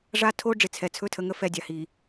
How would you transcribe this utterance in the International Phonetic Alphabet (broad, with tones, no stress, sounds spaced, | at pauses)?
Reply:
ʐ a˦ tʰ o˦ ɖ͡ʐ ɪ˨ t͡sʰ ɛ˨ t͡sʰ ɵ˦ tʰ ə˨˦ ŋ ə˦ f ɛ˦˨ dʲ a˨ h i˨